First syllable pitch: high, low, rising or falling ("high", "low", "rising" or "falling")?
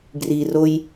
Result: low